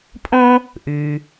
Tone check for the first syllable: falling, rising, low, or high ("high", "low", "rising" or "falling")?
high